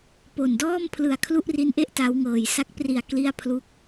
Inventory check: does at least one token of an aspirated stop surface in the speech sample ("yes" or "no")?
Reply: yes